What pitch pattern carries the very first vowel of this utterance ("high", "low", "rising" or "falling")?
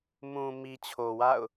low